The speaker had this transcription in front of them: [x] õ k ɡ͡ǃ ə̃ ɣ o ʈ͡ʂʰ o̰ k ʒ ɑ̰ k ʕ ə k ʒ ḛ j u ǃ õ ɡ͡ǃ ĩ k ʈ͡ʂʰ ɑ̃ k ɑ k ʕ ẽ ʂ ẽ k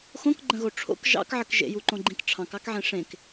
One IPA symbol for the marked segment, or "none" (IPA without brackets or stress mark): x